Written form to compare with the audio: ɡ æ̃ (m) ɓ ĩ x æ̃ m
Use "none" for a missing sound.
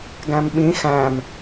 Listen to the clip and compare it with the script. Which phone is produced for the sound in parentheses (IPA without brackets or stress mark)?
m